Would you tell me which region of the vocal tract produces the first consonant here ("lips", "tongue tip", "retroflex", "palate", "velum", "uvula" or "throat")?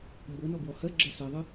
lips